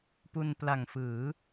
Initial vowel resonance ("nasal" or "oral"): oral